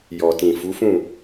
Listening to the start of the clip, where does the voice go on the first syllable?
low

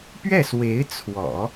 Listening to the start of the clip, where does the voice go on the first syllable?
falling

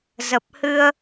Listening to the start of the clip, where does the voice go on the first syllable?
low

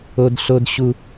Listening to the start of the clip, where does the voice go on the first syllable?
low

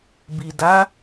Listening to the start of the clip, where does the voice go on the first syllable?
low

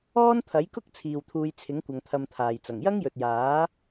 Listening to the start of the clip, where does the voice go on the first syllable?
high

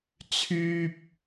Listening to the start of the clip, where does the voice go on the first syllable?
high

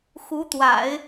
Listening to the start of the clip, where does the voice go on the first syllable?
rising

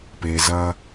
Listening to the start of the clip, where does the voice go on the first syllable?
low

